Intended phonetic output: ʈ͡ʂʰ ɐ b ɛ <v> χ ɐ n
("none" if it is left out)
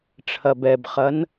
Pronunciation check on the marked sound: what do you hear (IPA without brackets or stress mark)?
b